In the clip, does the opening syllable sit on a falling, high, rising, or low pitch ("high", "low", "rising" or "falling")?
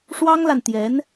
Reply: high